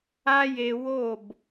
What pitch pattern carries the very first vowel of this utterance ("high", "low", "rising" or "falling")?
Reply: high